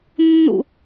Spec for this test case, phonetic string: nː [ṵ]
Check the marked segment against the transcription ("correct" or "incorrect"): correct